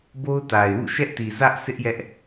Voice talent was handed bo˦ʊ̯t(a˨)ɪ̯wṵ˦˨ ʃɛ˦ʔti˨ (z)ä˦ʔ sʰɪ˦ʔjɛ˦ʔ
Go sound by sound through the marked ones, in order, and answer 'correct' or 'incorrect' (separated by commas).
correct, correct